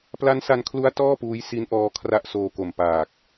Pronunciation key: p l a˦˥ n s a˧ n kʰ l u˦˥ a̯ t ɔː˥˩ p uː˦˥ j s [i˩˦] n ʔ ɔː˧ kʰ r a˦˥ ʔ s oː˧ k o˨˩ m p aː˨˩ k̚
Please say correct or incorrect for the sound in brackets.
incorrect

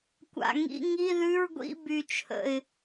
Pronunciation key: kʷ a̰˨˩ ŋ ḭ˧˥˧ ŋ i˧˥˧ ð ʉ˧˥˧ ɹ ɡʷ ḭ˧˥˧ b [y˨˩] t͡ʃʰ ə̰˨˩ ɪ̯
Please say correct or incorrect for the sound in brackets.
correct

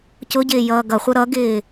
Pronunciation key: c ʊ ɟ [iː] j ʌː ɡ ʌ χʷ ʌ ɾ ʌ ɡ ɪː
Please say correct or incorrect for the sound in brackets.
incorrect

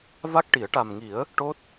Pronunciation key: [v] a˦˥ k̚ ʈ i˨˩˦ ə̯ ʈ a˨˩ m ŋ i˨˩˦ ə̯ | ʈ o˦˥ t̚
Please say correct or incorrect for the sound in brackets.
correct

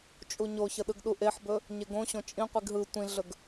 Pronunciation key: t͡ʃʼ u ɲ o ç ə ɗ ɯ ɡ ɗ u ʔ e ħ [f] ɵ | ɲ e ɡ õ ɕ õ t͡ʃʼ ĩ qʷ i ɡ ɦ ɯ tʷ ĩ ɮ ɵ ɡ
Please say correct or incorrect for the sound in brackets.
incorrect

